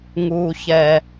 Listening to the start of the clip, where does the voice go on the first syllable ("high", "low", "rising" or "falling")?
low